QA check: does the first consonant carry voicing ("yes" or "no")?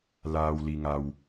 yes